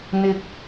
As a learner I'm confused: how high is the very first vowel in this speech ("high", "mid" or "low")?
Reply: high